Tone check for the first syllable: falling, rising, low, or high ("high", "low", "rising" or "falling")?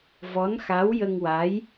rising